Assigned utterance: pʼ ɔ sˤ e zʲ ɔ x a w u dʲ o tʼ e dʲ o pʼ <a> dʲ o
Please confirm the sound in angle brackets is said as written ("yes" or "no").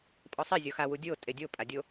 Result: yes